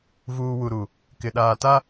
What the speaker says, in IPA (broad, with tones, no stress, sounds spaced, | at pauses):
v uː˨ w u˨ ɾ u˨ | k ɪ˨ ɗ aː˨ t a˦